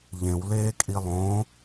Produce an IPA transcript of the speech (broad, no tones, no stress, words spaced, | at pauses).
ʎẽwleːkʼi lˠõ